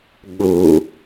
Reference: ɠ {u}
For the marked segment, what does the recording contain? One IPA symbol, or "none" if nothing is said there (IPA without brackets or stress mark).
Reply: u